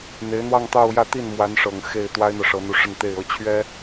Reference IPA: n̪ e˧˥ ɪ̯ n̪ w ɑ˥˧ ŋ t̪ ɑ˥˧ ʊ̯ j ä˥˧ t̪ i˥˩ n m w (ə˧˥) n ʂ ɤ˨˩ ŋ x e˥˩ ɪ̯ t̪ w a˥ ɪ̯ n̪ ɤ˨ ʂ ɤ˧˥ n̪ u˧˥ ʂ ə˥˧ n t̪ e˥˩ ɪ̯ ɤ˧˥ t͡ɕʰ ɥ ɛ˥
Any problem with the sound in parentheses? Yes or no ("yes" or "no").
yes